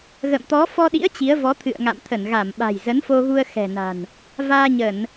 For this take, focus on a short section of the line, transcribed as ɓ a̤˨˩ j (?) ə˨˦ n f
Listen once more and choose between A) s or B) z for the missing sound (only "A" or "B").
B